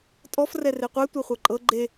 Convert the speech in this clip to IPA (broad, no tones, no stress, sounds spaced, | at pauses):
tʼ ɔ f r ɛ r e qʷ ɛ tʷ ɤ χʷ ɤ ǃʼ ɤ ɡ͡ǃ e